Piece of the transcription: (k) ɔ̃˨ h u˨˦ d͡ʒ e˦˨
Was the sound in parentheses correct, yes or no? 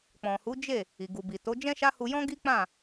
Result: no